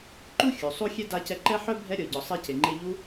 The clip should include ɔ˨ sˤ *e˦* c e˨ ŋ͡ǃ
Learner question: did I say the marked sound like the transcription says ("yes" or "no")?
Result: yes